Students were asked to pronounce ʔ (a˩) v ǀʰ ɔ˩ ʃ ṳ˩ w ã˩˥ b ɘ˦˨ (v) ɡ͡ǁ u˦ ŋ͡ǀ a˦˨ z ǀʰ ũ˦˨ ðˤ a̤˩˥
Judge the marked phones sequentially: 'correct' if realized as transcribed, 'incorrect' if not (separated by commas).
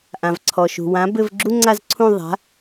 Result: incorrect, correct